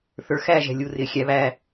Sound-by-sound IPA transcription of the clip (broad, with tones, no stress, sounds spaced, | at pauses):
θ ə˞˨ x æ˦˨ ʒ ɛ̤˨ lʲ u˨ r ɪː˨ xʲ æ˨˦ β æː˧